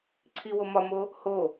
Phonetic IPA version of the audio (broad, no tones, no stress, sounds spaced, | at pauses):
ǀʰ i w o m ɒ m o | h o